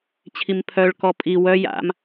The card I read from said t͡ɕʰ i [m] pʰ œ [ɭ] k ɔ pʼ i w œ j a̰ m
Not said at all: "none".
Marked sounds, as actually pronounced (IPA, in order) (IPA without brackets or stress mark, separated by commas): m, ɭ